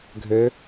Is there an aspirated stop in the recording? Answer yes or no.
no